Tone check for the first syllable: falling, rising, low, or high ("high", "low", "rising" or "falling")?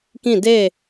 falling